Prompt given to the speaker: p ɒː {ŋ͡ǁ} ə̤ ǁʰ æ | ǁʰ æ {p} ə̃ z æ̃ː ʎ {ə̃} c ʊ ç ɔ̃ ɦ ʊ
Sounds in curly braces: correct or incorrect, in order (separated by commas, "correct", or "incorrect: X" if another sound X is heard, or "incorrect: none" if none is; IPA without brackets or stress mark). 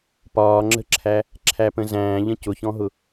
correct, correct, correct